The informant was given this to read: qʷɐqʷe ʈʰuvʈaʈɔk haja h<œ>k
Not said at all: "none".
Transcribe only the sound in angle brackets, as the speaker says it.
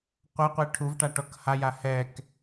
ɛ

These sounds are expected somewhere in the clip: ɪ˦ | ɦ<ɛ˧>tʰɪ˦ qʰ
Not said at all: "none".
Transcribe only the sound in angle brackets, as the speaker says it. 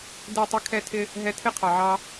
ɛ˧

